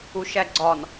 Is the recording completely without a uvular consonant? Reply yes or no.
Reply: yes